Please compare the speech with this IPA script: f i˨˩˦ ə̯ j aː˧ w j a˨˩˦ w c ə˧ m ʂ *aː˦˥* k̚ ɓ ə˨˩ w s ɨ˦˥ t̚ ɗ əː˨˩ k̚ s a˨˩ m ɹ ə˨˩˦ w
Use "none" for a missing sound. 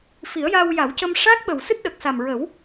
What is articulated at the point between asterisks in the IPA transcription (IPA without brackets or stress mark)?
aː˦˥